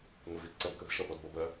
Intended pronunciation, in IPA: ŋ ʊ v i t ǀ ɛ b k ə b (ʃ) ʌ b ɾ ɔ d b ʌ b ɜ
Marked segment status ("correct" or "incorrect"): correct